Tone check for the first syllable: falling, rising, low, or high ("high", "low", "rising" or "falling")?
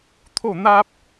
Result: falling